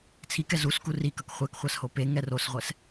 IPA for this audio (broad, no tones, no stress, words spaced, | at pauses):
t͡sʰikɛ zus kurikʌk χʷɛkχʷas hope ŋɛrosʁʷɛs